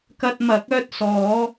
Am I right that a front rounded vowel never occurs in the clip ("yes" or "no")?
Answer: no